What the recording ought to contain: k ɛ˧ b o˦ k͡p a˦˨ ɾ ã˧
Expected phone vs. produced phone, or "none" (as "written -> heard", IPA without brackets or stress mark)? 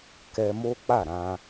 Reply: b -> m